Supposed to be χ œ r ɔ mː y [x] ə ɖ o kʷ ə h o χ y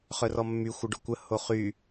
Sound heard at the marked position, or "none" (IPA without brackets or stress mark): xʷ